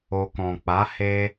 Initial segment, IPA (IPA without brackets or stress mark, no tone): o